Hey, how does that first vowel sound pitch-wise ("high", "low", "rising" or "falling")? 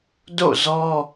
falling